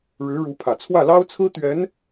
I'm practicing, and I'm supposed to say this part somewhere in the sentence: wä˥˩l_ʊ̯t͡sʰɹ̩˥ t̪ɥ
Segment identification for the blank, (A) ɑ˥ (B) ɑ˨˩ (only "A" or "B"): A